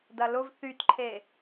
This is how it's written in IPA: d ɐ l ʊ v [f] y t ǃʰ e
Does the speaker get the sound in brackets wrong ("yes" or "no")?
yes